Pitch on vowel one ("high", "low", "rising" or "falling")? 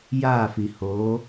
falling